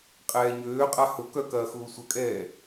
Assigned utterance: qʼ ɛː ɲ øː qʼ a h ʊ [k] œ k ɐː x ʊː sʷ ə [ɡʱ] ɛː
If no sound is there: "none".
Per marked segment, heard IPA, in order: k, kʼ

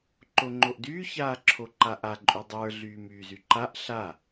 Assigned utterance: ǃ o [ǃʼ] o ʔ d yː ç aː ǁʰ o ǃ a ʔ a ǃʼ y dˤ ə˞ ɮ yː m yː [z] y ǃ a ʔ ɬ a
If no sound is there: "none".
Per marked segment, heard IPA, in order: ŋ͡ǃ, z

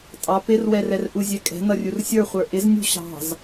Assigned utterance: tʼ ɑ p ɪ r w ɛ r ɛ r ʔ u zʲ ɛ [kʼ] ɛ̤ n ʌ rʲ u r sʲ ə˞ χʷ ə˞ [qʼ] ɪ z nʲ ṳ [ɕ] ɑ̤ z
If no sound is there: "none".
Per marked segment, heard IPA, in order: kʼ, ʔ, ɕ

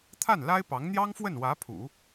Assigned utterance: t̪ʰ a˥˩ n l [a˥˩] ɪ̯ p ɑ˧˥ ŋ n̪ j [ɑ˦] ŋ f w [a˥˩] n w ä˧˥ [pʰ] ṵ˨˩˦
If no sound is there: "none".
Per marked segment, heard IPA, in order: a˥, ɑ˥, ə˥˩, pʰ

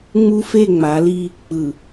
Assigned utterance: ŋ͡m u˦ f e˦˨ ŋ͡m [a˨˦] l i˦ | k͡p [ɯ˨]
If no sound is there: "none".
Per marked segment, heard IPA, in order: a˨˦, ɯ˨

